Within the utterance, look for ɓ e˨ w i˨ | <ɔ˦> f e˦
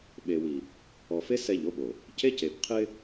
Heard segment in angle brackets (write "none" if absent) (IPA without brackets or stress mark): ɔ˨